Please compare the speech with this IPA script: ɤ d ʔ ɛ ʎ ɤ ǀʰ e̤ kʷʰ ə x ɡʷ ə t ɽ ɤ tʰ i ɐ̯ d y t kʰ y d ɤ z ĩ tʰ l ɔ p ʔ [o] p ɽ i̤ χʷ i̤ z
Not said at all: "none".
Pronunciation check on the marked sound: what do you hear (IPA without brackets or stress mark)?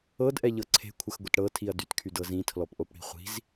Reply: o